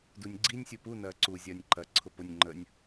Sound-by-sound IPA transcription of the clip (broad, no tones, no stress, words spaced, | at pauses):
dunʲɡ͡ǀinʲ sʲupu nɐːǀu zʲɐːnʲǃɐ ǀʰʊpʊnʲ ŋ͡ǃənʲ